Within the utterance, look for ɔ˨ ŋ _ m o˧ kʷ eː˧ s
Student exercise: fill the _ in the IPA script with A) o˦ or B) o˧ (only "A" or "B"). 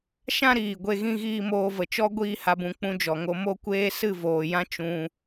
B